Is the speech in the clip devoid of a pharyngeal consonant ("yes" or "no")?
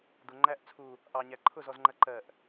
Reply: yes